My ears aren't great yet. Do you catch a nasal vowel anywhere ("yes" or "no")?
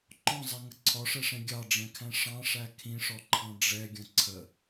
yes